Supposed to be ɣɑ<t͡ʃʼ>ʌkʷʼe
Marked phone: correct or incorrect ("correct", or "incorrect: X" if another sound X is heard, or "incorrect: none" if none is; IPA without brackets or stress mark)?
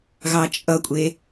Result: correct